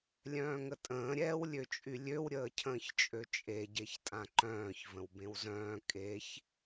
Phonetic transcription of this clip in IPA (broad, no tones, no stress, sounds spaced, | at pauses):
lʲ œ̃ː ŋ ə tʼ ə̃ː ɾʲ ɛː w lʲ ø t͡ʃʼ y lʲ ø w ɾʲ əː cʰ ə̃ː ç t͡ʃʼ ø t͡ʃʼ e ɟ e ç tʼ ã ǃ œ̃ː ç v ə̃ w b ẽ w z œ̃ː kʼ e ç